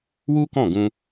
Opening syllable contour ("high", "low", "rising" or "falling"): high